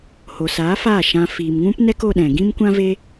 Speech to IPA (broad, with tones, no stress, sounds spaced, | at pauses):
h o˨ s aː˨˦ f aː˦˨ ʃ ã˧ f iː˨ m ŋ ũ˦ p n ɛ˦ k o˧ ɗ ɛ̃˨ ɡ ĩ˦ m kʷ ã˦ v e˦